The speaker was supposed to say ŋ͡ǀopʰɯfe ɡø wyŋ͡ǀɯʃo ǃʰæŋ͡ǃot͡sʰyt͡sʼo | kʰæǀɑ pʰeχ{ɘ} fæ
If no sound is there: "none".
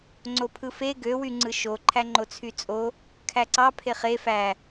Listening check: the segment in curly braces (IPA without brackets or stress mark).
e